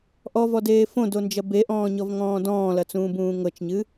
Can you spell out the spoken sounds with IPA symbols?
ʔ ɔ v ɔ d eː f õ d o n d͡ʒ ɐ b e ʔ ɔ̃ː ɲ ɔ v ŋ ɔ̃ː d ɔ̃ː l ɐ t͡s ũː b ũː ŋ ɤ t͡ʃ ɲ ɨ

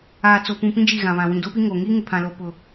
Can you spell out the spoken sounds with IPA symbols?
aː˨ t͡s o˨ p ũ˨ p ĩ˦ d͡ʒ i˦˨ ɣ ã˨ β ã˨ w ĩ˨ d o˦ p i˦ ŋ oː˨ ŋ i˦ ŋ ɪ˨ pʰ ã˨ l o˨ p ʊ˨

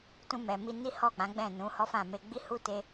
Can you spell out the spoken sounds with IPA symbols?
t ũ˧ m ɛ˨ m i˧ n i˦ h ɔ˦˨ k͡p ã˨˦ ɡ͡b ɛ̃˦˨ n ũ˨˦ h ɔ˦ f ã˦˨ m e˧ ɡ͡b i˦ h u˦ t e˧

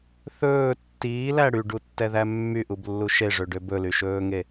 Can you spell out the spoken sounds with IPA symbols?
θ ɵː tː iː l æ ɽ y ɖ u tː ɛ ð æ mː y ʔ u b lː u ʃ e ʐ ø ɖ ø b ɵ l y ʃ ɵː ŋ e

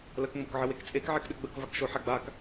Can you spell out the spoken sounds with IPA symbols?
l ə k ŋ͡m o k ʕ ə w e k t͡sʼ e k ʕ ɛ k ɗ ɘ ɡ͡b ə k v a k ʃ o ħ a ɡ͡b a k

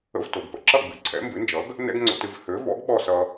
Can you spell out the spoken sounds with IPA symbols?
ə̰˧ v t o˩ ɡ p ə̰˩ ǁ ʌ˥˩ ɡ͡b ɨ˩˥ ǀʰ ɛ̰˩˥ m b ɨ˩˥ n d͡ʒ ʌ˩˥ ɡ | n ɛ̰˥ ɡ ŋ͡ǀ o̰˧ t ɨ˧ v h ø˩˥ v ɔ̰˩˥ ɡ ɓ ɔ˥˩ s ʌ˧

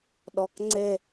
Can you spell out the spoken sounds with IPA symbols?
ɗ ɔ k ŋ͡ǀ e

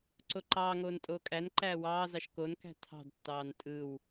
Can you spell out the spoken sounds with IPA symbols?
ǀ o ǃ ɑː ŋ oː n tʼ oː kʼ æ n ǃ æː w ɑː z ɑ ʃ k o n k æ̤ tʰ ɑ̤ d tː ɑː n tʼ ɯ w

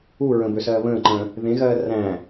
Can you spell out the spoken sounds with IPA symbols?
u ɹ ə̃ b ø s ɜː β ə̃ː ǃ ə̃ː | ð ẽ ɣ ɜː r æ̃

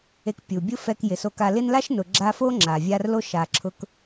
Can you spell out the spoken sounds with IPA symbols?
e˨ k pʲ u˩ bʲ ʊ˦ f ɛ˨ k j ɪ˩ s o˨ k a˨ l ɪ˦ n l a˥ ʃ n ʊ˨ ɡ͡ǁ a˦ f o˥ ŋ͡ǁ a˩ vʲ a˦ r l o˥ ʃ a˨ ǁʰ ʊ˥ k

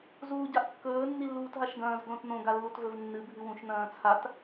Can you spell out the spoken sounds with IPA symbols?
z uː ɟ a ʔ kː ɵː nː i lː uː t ɦ a ʃ ɡ ɐ̃ː z ɡ l õ t n õ ɡ a lː u t v ɵ v nː ɨ bʱ ɨ w ũ ʃ n ɐ̃ː t͡sʰ a t

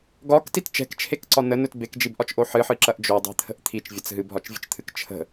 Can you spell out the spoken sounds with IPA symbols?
ɡ ɒ k t i t t͡ʃ ɛ̤ k t͡ʃʰ e k ǀ ɒ n ə n ɵ t b e k d͡ʒ i b ʔ ɒ t͡ʃ ʔ o ħ ɨ ħ ɨ ǁ ɐ ʔ d͡ʒ o dˤ ɛ̤ t̪ʰ ə̤ ʔ t̪ʰ i t͡ʃ vʲ ɐ t͡s ɦ ɨ b ɦ ɒ t͡ʃ vʲ ə̤ t͡ʃ t̪ʰ ɨ k t͡ʃʰ ə̤

